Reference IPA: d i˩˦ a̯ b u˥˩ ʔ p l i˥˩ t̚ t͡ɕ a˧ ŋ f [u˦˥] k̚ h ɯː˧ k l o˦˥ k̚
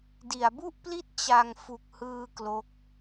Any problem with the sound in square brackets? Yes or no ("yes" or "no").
yes